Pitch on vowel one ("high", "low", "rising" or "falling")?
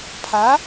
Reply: rising